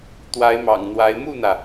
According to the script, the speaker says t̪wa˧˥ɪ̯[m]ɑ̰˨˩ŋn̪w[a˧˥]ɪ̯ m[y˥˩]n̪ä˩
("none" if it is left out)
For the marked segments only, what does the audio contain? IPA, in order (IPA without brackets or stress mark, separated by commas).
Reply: m, a˧˥, u˥˩